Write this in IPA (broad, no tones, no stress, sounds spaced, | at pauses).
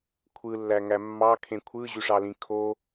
kʷʰ ɯ lː æ ŋ æ mː ɑ kʰ ẽ kʷʰ ɯ ʑ y ʂ ɑ l ĩ kʰ o